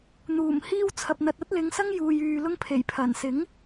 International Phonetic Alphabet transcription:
n̪uː˨˩m hiː˧w t͡sʰɐ˨p̚n̪ɐ˨t̚ ɐ˥t̚lɪ˨˧ŋsɐ˥ŋ juː˨jyː˨lʊ˧ŋ pʰe˨˩jpʰɐ˨˩nsɪ˨˥ŋ

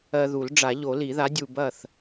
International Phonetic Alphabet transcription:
ɜ˧ðu˨˩˦l ɖ͡ʐa˨˩˦ʎo˨˩˦li˨˩˦ða˨˥ dʲu˧bɐ˥˨θ

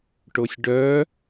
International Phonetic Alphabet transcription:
ʈosʲɖœ

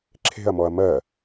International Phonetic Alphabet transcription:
ǁʰe̤ɐ̯mɔɐ̯ mɜ

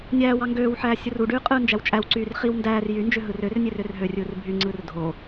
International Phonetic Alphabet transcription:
nʲæːwɑ ŋɡøːwħæː sʲɯruɖyː qʼɯːnd͡ʒæwt͡ʃʼæwǀyːr χiw ndæːr jy nd͡ʒøɦɯrørnʲer ørɦørʲɯːr bʱyŋ͡ǀɯːr dʱo

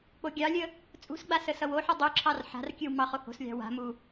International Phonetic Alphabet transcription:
k͡poɡʲɑlʲə | t͡sʼṳsɡ͡ba səsʌwoħɨ dˤuǁʰɑr ħa̤rkʲɨw mɑχoho̤slʲɑ̤ wa̤mu

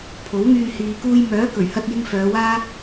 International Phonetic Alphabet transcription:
pʰo˨˥wŋyː˧ hiː˨kuː˧j mœː˨˥kɵ˨˩ɥhɐ˧t̚jɪ˧ŋ fœː˨˧waː˥

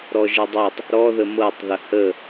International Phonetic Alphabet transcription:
ɾɔʒɤdˤɤtˤ | ɾɔ ðəmɤtˤ ðəhə

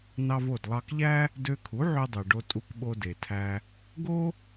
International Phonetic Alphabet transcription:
nɑ˧vo˥˩dlˠɑ˧kʎæ˥ | dø˧kʰu˩˥ʕø˧dˤø˩ ɖo˧tʼu˧kɓo˧ de˩tʰæ˧ | ɡo˥

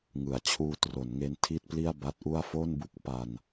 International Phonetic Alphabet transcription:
ŋɯ˩˦a̯t͡ɕʰuː˧tro˩˦nŋe˧n tʰi˥˩t̚pli˥˩a̯ba˦˥t̚ ʔu˥˩a̯ fo˥˩nbu˥˩k̚ pa˧n

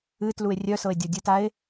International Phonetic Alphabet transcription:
ɨ tlue̯rʲœsɤe̯ dʲɤdʲɨtae̯

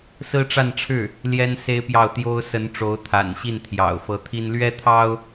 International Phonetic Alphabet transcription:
sɹ̩˥ʈ͡ʂa˥˧nʈ͡ʂʰɻ̩˥˩ | ljɛ˥nse˥ɪ̯pjɑ˥˩ʊ̯ t̪jo˥ʊ̯ sə˧˥n ʈ͡ʂo˧˥ʊ̯t̪ʰa̰˨˩nɕi˥˩n t̪ʰjɑ̰˨˩ʊ̯fɤ˧˥t̪ʰi˥n lɥɛ˥t̪ʰɑ˥ʊ̯

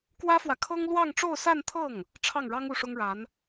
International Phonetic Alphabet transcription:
kwä˥fwä˨kʰɤ˥ŋ lwɑ˥˧ŋʈ͡ʂo˥˧ʊ̯sa˥˧nt̪ʰɤ˥˩ŋ | ʈ͡ʂʰɑ˥˩ŋɻɑ˥ŋ u˥˩ʂʊ˥ŋɻa˧˥n

